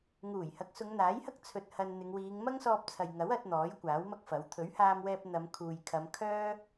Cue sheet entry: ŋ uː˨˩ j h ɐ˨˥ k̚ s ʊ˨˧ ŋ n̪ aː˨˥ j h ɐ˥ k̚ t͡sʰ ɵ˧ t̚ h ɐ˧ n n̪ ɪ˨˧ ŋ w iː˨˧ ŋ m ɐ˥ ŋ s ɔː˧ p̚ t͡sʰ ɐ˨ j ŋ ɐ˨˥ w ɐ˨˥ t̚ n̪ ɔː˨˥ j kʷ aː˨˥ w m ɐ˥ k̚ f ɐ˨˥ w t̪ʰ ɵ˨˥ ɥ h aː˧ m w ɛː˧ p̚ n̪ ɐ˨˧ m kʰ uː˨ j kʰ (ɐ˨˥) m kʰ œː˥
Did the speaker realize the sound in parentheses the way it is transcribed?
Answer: no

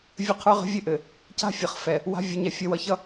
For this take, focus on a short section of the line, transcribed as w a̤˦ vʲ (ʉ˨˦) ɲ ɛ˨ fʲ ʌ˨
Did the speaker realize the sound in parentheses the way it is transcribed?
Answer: no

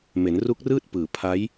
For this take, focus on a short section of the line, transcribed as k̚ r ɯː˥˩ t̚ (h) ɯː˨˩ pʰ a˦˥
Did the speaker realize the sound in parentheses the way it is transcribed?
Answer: no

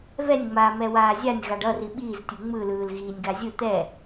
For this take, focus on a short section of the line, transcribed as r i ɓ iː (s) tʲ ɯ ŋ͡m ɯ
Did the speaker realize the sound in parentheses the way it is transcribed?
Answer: no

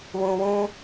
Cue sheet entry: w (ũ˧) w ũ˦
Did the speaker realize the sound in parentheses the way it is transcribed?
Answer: yes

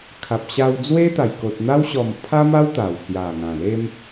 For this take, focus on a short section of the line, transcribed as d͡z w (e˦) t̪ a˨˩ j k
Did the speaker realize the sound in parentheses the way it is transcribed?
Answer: yes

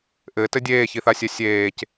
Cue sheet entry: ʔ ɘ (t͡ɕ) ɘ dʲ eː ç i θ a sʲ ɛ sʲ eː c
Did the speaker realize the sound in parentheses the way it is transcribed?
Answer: no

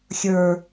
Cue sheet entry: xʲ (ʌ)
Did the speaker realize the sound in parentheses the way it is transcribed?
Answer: no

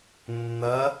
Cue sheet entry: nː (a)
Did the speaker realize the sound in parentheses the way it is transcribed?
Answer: no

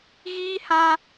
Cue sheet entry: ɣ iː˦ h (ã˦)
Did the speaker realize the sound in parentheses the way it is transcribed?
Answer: yes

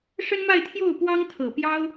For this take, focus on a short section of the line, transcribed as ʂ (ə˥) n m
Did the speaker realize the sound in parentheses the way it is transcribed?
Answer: yes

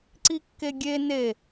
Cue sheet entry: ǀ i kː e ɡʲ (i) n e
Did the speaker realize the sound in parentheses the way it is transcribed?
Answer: no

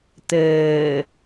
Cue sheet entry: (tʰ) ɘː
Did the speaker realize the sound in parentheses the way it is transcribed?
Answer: no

